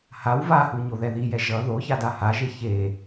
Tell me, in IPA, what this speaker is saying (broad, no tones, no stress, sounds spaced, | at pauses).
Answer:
h a w v a h u ɲ o ð ɛ ð i j ɛ ʒ ʌ ð o ç a d a h a ʒ e ç e